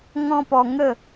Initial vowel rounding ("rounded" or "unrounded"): rounded